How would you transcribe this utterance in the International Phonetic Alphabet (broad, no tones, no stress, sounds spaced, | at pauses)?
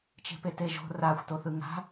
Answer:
t͡ʃ e̤ p e t e ʒ o̤ r a xʷ t o θ ɯ ŋ a̤